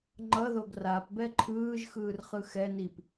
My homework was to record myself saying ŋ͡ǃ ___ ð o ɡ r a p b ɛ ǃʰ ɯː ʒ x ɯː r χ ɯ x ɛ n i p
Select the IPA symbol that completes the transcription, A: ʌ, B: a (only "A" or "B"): A